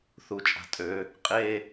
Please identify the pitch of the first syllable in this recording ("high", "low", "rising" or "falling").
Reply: low